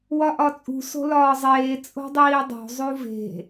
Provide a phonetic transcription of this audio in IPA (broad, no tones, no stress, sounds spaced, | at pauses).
w ɒ ʔ ɒ t͡sʼ ṳ s o̤ l ɒː zˤ eː t͡sʼ o̤ dˤ iː dˤ o̤ zˤ u v e̤